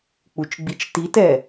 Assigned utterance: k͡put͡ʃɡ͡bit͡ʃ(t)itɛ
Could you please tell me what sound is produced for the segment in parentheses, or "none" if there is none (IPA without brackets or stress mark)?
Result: t